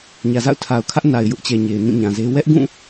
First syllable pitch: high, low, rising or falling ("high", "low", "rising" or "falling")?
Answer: low